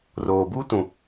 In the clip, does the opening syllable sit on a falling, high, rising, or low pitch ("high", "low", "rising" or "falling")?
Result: low